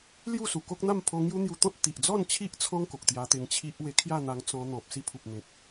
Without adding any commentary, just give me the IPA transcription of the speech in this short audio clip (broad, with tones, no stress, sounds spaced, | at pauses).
l j u˥˧ s u˨˩ k o˦ k̚ n̪ a˥˧ m pʰ o˧ ŋ j u˦ n̪ j u˧ t̪ ɔ̃˦ t̚ t̪ i˨ ʔ d͡z ɔ˥˧ n t͡ɕʰ i˦ ʔ t͡sʰ ɔ̃˦ ŋ k o˨ k̚ t̪ j a˧ t̪ e˧ ŋ t͡ɕʰ i˦ ʔ w e˧ kʰ j a˥˧ n̪ a˧ ŋ t͡s ɔ̃˧ n̪ ɔ̃˨ p̚ s i˧ pʰ u˨ p̚ n̪ ẽ˨ k̚